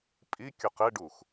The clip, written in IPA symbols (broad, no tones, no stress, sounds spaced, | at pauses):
pʼ i kʲ o q ɪ ɖ u x